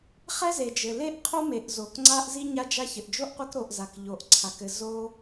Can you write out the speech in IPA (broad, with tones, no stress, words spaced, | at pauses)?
χɛ˥ze˩ d͡ʒɘ˩ le˦ʔqʰo˦me˩ʔ zo˩kŋ͡ǀa˦ʔ zi˦ɲa˦d͡ʒa˦ çɘ˩ʔd͡ʒo˥ʔqʷe˦k ɾo˨ʔza˩k ʎo˩ʔ ǀʰa˩kɘ˨ zo˥